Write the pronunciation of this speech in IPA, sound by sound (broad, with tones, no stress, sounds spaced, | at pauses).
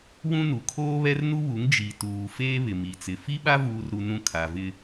w ũ˦ n u˨ kʰ oː˦ β ɛ˦ r n u˦ β u˨˦ ŋ d͡ʒ i˨ t uː˨ f eː˦ β ɪ˨ m i˨ t͡s ɪ˨ f i˦ ɓ a˦ v uː˦ r ɾ u˦ n ũ˦ kʰ a˨ v ɪ˦